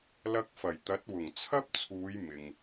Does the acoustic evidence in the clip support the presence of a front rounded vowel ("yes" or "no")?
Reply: no